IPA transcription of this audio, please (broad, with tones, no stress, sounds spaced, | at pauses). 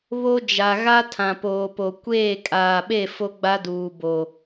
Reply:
β o˦ d͡ʒ a˨ ɣ a˦ tʰ ã˨ p oː˨ p o˨ kʷ eː˦˨ kʼ aː˨ ɓ e˦˨ f o˦ ɡ͡b a˦ d uː˨ b o˨